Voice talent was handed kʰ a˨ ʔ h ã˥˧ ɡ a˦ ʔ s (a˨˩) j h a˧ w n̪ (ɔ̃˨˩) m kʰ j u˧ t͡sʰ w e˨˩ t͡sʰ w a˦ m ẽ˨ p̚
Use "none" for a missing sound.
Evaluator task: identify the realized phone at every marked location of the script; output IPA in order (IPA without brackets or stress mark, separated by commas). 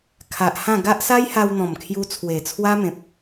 a˦, ɔ̃˨˩